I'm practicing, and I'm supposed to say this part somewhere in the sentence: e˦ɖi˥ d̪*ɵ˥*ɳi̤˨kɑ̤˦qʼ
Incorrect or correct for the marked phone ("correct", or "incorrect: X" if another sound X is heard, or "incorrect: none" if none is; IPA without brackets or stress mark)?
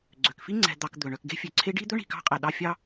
correct